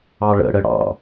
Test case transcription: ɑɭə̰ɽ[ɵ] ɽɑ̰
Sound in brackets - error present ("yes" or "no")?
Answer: yes